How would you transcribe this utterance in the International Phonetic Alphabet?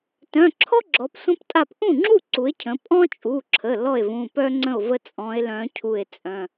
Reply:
t œ̃˩˧˩ ǁʰ ɔ˥ ɡ͡ǁ ɔ˩˧ p sʷ ə̃˥ p tʼ a˥˩ p ʔ ũ˥˩ ŋ͡ǁ u˥˩ ǀ u˩˧ e̯ cʰ ə̃˩˧ pʼ ɔ̃˥ t͡ʃʼ u˩˧˩ ǁʰ ə˩˧˩ l ɔ˥˩ e̯ v ũ˩˧˩ p œ˥ ŋ͡ǀ ə̃˥˩ o̯ v ə˥ t͡sʼ ɔ̃˧˥ e̯ l œ̃˧˥ cʰ u˧˩ e̯ t͡sʼ œ̃˩˧˩

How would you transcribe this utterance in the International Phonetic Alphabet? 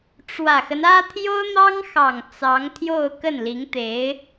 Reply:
ʈ͡ʂ w ä˨˩ x ə˦ n ä˥ t̪ʰ j o˥ ʊ̯ n̪ ɑ˥ ŋ x ɑ˨˩ ŋ t͡s ɑ˧˥ ŋ t̪ʰ j o˥˧ ʊ̯ k ə˥˩ n l i˧˥ ŋ t̪ e˧˥ ɪ̯

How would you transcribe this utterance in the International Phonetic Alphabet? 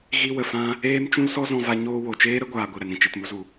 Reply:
ɣ i˧ w ə˨ f ã˧ | eː˦ m t͡ʃ ũ˦ l s ɔ˦ z ɔ̃˧ v a˧ ɲ oː˧ w o˨ t͡ʃ eː˦ ɾ ə˦ ɡʷ aː˧ ɡʷ i˨ ɾ ɛ˧ n ɾ ĩ˧ t͡ʃ i˨ t m u˧ z u˨

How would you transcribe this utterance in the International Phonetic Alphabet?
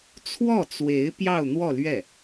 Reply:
t͡sʰ w ɔ˥˩ t͡s w e˧˥ ɪ̯ p j ɑ˥˧ ʊ̯ n̪ w ɔ˥˧ l ɥ ɛ˥˩

